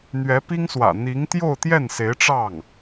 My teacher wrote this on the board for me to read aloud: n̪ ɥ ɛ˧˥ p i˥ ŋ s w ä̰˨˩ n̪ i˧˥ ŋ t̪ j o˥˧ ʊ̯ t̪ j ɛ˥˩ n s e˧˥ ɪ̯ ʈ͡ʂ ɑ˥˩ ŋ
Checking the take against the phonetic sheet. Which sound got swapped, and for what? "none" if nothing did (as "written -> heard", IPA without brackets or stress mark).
none